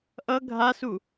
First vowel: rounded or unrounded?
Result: unrounded